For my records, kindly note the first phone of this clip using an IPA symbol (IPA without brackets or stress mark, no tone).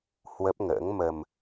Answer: h